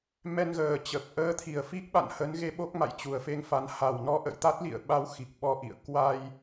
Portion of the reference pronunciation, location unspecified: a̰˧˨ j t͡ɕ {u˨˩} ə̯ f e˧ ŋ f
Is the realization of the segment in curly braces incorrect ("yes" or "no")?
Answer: no